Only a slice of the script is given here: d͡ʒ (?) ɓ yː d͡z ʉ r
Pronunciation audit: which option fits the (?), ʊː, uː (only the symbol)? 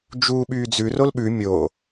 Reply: uː